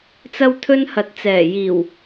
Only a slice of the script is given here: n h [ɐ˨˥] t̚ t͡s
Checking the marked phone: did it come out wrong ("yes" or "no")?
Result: yes